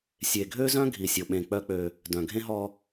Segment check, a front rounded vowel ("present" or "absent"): present